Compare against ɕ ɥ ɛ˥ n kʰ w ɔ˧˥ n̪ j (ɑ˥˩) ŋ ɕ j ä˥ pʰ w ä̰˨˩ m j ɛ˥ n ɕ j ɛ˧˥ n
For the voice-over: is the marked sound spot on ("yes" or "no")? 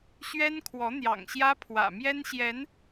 no